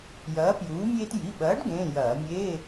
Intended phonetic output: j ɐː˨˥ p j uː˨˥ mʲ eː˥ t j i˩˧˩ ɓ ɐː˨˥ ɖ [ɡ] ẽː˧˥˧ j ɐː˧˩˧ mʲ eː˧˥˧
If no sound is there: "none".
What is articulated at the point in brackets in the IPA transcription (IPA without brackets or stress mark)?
ɡ